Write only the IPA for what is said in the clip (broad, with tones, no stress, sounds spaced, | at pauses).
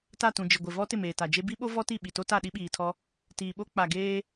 t a˦˨ t ũ˨ d͡ʒ ɪ˨ ɡʷ ɪ˨ v ɔ˦ t ɪ˦˨ m eː˨ t a˨ d͡ʒ e˦ b i˦ ɓ o˦ v ɔ˦ t i˦˨ ɓ i˨ t o˦ t a˦˨ ɗ i˦ ɓ iː˨ tʰ ɔ˦ | t iː˨ ɓ o˦ k͡p a˨ ɡ eː˦